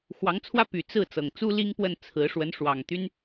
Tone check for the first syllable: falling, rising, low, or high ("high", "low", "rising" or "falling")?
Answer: rising